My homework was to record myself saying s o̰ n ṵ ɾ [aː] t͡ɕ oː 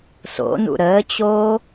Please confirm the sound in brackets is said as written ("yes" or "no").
no